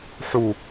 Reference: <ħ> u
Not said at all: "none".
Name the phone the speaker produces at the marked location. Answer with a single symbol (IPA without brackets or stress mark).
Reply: ħ